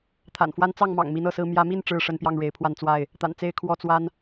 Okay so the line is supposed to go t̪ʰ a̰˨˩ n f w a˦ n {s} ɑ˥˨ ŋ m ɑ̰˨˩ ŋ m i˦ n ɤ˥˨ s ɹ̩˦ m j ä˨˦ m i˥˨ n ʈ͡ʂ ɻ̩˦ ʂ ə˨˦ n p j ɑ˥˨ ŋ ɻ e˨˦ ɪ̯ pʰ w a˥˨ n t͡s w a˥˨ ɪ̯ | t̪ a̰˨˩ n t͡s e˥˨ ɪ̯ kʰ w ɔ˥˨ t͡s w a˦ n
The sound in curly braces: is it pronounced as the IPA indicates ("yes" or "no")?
no